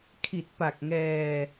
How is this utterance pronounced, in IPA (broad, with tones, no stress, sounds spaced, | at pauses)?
kʰ i˨˩ t̚ p a˨˩ k̚ ŋ ɛː˧